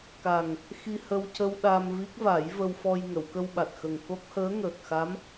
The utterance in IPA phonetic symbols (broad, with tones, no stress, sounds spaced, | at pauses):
k a˨˩ ŋ | x i˧ h ə˧ w c ə˧ w ɗ a˧ m v i˦˥ k̚ v a˨˩˦ j v ə˧ w f ɔ˧ j ŋ ə˨˩˨ w k ə˧ w ɓ a˨˩ t̚ x ə˨˩ ŋ k o˦˥ k̚ h əː˧˥ ŋ əː˨˩ k̚ x a˧˥ m